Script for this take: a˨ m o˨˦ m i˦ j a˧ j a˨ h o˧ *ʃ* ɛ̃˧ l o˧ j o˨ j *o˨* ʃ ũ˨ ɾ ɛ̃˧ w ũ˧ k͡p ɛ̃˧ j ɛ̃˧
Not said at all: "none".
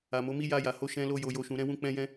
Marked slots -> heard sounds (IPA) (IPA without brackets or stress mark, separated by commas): ʃ, o˨